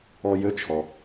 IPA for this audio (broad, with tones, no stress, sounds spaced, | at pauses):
ɔ˧ j ø˧˥ t͡ʃʰ ɔ˩